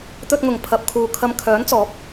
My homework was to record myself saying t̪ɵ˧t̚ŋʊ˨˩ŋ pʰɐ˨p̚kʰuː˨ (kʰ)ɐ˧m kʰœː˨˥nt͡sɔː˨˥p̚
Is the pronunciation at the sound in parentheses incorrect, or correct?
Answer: correct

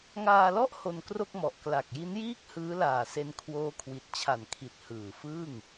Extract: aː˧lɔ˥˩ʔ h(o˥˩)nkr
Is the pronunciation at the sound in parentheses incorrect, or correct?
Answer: incorrect: o˧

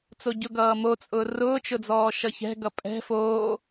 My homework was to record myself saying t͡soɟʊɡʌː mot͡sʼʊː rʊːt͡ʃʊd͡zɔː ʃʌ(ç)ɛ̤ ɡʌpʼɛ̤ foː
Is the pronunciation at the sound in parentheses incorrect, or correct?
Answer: correct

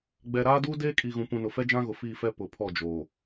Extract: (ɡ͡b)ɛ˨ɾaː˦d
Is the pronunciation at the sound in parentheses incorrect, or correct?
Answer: correct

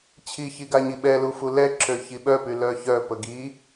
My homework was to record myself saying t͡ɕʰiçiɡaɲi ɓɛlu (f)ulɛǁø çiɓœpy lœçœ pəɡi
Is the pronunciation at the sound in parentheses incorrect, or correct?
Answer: correct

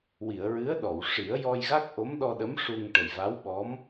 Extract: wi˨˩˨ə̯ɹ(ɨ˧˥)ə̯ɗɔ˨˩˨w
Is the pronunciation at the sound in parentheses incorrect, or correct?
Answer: correct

